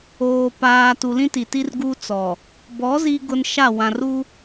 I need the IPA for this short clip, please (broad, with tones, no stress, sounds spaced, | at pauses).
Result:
oː˨ p aː˨ t u˨ l ĩ˦ t i˨ t i˦ r ɡ u˦ t͡s ɔ˨ | b ɔ˨˦ z i˨ ɡ ʊ˨ n ʃ a˦˨ w ã˨ r u˦